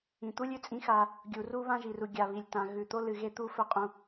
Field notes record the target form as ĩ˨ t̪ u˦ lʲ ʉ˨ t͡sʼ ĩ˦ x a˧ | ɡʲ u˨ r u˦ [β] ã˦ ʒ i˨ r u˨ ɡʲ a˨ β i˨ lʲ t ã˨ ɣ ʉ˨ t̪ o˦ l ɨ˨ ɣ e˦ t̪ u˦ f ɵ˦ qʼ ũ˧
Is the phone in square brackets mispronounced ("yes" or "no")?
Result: no